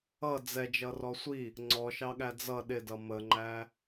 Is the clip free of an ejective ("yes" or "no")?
yes